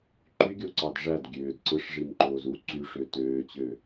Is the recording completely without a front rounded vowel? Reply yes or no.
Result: no